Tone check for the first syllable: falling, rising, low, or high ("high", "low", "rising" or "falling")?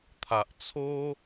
low